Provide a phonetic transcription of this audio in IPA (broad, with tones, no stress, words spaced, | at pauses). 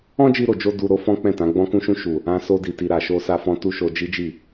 ɔ̃˦d͡ʒi˧ɾo˨d͡ʒo˧ du˧ɾo˦ fɔ̃˦k͡pɛ̃˦˨tã˨˦ ɡ͡bɔ̃˦kũ˦ʃũ˦ ʃu˦˨ | ã˧so˧di˨ti˨ ɾa˨ʃo˧sa˧fɔ̃˧ tu˦ʃo˧ d͡ʒi˦d͡ʒi˦˨